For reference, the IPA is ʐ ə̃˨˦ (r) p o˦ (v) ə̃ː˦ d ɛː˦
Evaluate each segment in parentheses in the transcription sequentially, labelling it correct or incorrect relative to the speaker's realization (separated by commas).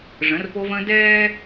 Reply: correct, correct